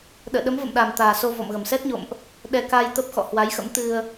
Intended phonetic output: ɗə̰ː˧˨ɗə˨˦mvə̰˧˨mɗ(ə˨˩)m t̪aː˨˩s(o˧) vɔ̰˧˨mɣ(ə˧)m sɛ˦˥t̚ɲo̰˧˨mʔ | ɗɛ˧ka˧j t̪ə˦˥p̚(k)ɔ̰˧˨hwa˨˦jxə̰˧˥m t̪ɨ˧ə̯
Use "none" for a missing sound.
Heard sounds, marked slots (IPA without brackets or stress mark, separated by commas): a˨˩, o˧, ə˨˩, x